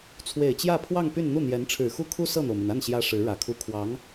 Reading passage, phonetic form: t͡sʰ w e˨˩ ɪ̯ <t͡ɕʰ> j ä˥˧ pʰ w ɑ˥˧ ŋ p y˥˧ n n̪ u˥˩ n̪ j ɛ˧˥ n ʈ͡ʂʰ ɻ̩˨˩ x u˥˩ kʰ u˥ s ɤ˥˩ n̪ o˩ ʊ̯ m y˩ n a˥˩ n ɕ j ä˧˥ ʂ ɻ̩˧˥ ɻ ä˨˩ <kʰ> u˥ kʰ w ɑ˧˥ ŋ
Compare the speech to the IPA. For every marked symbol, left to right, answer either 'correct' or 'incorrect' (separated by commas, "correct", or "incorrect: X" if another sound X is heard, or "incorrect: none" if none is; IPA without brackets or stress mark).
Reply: incorrect: t͡ɕ, correct